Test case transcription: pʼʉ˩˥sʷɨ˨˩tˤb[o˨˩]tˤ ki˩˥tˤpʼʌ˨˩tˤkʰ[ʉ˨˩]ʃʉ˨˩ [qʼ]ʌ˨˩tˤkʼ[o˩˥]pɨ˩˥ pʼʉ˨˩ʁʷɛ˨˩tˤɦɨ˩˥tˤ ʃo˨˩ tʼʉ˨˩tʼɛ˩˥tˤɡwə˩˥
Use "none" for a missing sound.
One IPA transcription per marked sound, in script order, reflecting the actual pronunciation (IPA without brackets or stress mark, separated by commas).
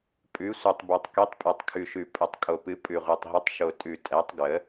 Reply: o˨˩, ʉ˨˩, pʼ, o˨˩